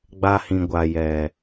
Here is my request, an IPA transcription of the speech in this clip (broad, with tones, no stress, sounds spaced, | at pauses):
ɡ͡b a˧ h ĩ˨ ɡʷ a˨ j ɛ˨